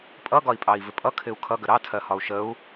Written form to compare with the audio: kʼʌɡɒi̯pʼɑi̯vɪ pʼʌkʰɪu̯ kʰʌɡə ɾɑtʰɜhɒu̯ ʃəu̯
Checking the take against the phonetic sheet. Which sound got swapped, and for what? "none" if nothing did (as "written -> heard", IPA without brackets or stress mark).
kʼ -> pʼ